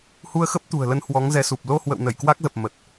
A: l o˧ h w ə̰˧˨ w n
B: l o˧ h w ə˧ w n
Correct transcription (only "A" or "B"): A